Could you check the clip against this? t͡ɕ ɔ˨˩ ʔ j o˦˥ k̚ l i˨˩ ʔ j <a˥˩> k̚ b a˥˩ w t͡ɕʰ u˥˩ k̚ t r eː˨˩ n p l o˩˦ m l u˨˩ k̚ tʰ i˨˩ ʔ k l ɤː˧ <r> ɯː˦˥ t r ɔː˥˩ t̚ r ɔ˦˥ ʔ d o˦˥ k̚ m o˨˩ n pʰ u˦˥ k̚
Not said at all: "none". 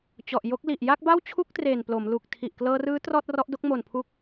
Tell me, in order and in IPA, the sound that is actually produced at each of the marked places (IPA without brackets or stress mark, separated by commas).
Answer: a˥˩, r